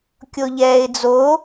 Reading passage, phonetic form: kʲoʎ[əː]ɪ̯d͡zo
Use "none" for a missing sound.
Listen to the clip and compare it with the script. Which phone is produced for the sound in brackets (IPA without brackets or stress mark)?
ɛː